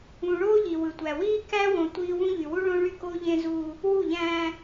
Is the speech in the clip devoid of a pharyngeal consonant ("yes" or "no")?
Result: yes